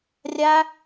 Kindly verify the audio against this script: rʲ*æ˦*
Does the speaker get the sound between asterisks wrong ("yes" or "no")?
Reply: no